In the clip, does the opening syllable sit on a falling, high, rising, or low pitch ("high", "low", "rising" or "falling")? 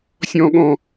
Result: high